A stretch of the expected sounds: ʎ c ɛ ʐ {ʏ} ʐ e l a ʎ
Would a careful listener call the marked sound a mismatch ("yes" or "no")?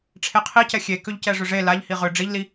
no